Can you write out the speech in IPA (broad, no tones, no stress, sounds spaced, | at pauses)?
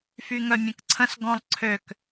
f y ŋ œ mʲ ə̃ k ǀʰ ə̃ s ɡ ɔ̃ lˠ ǀʰ ø k